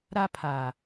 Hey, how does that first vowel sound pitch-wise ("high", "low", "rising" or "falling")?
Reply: high